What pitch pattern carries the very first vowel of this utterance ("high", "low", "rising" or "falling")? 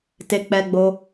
low